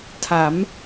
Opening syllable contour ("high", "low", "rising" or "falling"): rising